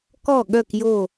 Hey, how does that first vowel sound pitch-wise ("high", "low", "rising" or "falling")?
falling